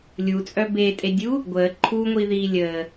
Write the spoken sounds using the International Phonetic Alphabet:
lʲut͡sʼœ betʼedʲuː | ɡʷəː ǃʰuːŋʷiðiː lʲəː

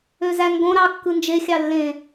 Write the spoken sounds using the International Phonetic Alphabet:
øzæŋɡõ ɾɑ kːɯnd͡ʒe xʲɑlːẽ

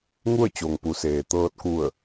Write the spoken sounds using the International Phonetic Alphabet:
ŋu˥˨ə̯t͡ɕo˩ŋpu˩˧seː˩ t̪ɤː˧t̚ku˧˩ə̯

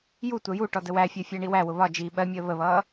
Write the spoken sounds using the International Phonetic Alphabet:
jutʷɜ ju ʈɔdəwæfʲɜ fʲɜɳiwæwʊ βɒ d͡ʒiːɓɜmʲəː βəβʌː

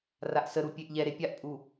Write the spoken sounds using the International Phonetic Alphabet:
raʔsəɾu pʲeʔʎɛɾe pʲaʔpʼu

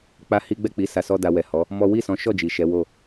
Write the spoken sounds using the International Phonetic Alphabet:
k͡pa˦hi˦ ɡ͡bɛ˦˨k͡pi˨˦ sa˧sɔ˦da˧ wɛ˨hɔ˨˦ | mɔ˦ wi˦˨sɔ̃˨˦ʃɔ˦˨ d͡ʒi˨ ʃɛ˨˦wo˦˨

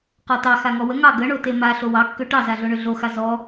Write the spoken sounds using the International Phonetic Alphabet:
qɔtɑ xaŋɔwə ŋɑ ɡəɳo tema ɬowɑkːø ʈɑzaɮoɳø ɮoxa zɔ

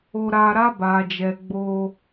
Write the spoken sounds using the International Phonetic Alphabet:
o˧ɾa˧ɾa˦ ba˦d͡ʒɛ˦ ɡ͡bo˧

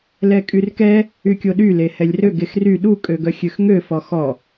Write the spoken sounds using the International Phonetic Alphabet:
lɛkʼyrkɛ | ykʲoɗy lehɛlʲrøɡ exry ɗu kʼøɡœxʲøxŋø fɔxɔ

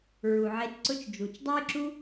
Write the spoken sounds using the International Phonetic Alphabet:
ɹu˨ʕe˧tǀʊ˦t͡ʃd͡ʒu˨t͡ʃ dˤɛ˦jǁu˦

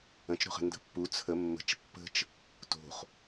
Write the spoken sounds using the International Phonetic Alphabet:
ə̃t͡ʃ ɾo̤χə̤ ndə̤pːu t͡sʰə mːə̤t͡ʃ pːə̤t͡ʃ | to̤χ

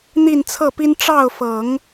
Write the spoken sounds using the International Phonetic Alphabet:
n̪i˥˧nt͡sʰɤ˥˩pi˥n ʈ͡ʂɑ˥˩ʊ̯fɤ˨˩˦ŋ

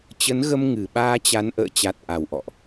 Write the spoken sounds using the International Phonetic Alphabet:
t͡ɕə˨˦nɣə˧m ŋɨ˨˩ ɓaː˧t͡ɕa˨˦n ʔə̰ː˧˨t͡ɕa˨˩t̚ ʔa˨˩wʔɔ̰˧˨ʔ

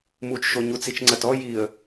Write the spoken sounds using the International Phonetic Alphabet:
mut͡ʃʃo ɲut͡sit͡ʃŋ͡ǀɐtɔ jiə̯

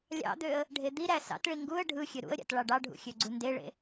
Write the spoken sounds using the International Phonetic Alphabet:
lʲɑ̰d̪øə̯ | ɖʱed̪iɾæ sɑ̰tɭi ŋɡuə̯ ɖʱɯ xʲøɾṵə̯ɾʲɑ̰t ɭɑɖɑɖʱṵ xʲøɡ͡ǀundeɭḛ

